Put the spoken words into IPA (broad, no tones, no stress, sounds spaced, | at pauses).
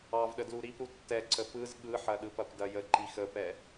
ɑ v ɗ ə d l u ɾ i p ɾ u tː ɛ ǀ ə p ɯ z ɠ ɯ ħ ɐ ɗ ɯ p ɐ p d ɐ j ə ǃ i x ə p ɛ